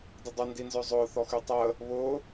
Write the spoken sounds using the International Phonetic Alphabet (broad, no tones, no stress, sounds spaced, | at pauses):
d ɪ dˤ ʊ n d i n z œ zˤ ʊː θ ɔ x y tˤ əː | β ʊː